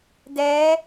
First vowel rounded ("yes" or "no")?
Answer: no